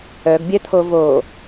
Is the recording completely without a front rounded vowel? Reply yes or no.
no